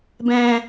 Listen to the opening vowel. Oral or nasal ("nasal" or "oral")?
nasal